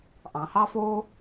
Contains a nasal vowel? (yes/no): yes